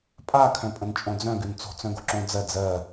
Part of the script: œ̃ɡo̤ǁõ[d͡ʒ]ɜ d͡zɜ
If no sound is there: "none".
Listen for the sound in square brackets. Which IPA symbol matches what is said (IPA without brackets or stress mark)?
d͡z